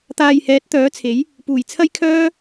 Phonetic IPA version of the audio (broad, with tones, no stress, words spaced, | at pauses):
t̪aː˨jhɛː˨˥t̚ t̪œː˨˥t͡sʰe˨˥j | puː˨˩jt͡sʰɐ˥j kʰœː˥